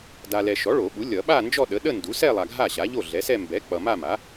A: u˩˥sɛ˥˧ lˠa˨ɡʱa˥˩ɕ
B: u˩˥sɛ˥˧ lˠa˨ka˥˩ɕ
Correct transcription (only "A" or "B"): A